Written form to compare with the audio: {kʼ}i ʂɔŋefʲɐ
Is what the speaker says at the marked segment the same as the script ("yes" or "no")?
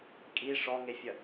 yes